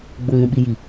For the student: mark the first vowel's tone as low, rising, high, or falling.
low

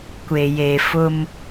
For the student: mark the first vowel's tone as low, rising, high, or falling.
low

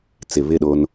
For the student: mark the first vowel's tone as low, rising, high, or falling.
low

